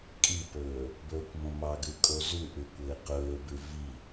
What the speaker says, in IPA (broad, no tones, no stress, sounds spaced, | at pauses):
kʼ i p ɵː | b ɵː kʷ m õ m ɑ ɡ ʉ kʼ o z ʉ ʔ ʉ kʷ ɘː q ɵː b ʉ v i